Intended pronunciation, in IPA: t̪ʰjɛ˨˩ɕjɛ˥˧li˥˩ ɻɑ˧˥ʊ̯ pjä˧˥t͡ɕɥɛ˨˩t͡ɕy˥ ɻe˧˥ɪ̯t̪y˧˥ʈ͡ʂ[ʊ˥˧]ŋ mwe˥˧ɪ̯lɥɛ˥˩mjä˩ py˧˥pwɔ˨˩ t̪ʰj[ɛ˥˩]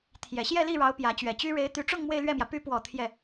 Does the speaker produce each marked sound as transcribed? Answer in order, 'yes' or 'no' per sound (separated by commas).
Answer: yes, yes